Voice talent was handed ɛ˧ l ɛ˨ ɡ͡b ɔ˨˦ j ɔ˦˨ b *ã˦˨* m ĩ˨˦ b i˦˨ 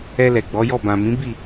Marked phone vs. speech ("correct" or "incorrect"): incorrect